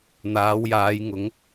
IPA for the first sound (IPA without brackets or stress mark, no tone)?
n̪